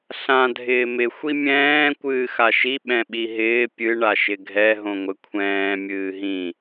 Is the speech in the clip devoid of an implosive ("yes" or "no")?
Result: no